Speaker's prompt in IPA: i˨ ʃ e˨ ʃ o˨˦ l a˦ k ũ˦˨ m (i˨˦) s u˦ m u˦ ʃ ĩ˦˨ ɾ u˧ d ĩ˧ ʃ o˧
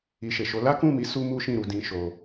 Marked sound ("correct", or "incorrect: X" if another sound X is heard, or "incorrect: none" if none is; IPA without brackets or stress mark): incorrect: i˧